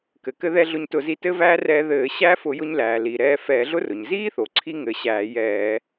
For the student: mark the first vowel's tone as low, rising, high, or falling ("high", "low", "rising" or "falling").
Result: low